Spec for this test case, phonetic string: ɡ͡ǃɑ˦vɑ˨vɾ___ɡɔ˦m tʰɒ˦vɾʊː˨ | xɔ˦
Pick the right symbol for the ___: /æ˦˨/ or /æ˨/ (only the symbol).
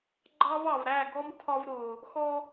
æ˦˨